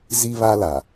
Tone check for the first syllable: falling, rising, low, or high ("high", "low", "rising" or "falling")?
high